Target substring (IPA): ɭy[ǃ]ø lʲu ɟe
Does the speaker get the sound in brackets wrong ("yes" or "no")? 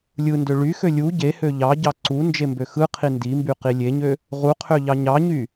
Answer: yes